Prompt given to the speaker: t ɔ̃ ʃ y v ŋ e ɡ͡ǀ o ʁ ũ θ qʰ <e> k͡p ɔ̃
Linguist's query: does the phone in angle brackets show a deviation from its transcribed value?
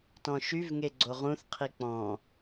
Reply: yes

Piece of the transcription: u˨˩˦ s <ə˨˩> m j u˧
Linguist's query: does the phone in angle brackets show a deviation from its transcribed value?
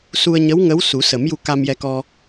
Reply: yes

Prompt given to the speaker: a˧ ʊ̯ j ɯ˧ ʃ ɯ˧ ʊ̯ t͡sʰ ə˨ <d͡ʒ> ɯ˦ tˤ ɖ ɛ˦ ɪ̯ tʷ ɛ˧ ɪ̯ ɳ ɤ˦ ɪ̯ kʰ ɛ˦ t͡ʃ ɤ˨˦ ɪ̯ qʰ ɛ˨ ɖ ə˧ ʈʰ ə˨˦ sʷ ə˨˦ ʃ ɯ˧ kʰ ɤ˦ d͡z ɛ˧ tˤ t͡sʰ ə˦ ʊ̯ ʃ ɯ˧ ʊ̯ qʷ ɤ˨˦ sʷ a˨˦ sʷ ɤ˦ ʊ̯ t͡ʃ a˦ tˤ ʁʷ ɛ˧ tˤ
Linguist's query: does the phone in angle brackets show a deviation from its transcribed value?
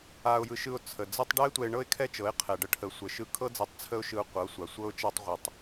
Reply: yes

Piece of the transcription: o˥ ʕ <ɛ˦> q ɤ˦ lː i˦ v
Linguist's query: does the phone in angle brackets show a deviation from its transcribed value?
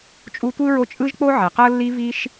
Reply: yes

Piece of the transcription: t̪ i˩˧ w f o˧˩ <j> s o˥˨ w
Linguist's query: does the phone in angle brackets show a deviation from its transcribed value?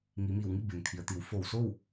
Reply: yes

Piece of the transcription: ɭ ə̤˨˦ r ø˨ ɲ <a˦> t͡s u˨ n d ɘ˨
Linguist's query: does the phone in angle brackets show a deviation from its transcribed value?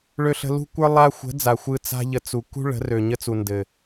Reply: yes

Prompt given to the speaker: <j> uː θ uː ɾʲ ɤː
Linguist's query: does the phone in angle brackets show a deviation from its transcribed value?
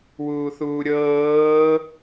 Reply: yes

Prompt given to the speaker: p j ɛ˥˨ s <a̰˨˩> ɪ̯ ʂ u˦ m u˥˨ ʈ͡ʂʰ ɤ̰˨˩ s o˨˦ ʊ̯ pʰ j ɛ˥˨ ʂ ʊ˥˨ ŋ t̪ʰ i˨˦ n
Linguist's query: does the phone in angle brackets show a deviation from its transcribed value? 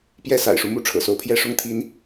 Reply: no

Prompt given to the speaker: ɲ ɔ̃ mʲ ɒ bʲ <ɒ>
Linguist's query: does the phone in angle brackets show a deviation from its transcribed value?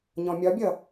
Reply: yes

